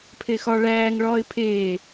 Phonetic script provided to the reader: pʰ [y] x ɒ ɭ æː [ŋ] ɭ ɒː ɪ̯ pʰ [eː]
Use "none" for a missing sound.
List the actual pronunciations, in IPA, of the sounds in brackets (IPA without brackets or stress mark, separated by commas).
e, ŋ, eː